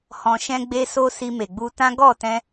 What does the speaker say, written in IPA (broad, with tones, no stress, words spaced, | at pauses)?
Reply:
hɔ̃˧ʃɛ̃˦ɡ͡be˦so˦ si˧me˨ɡ͡bu˧tã˦ ɡɔ˦˨tɛ̃˧